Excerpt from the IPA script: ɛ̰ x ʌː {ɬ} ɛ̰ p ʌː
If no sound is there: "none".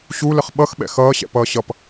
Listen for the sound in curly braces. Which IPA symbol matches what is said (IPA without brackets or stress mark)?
ɕ